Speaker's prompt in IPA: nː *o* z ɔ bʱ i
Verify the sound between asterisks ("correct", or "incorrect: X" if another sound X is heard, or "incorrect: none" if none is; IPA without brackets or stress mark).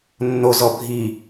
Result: correct